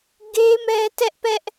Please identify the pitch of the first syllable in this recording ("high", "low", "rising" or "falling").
high